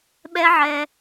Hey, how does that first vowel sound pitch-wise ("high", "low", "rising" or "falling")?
high